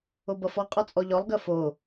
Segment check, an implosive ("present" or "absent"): absent